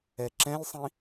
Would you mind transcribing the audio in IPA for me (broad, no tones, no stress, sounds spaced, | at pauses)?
ɛ ǁ ɛ̃ lʲ sˤ ĩ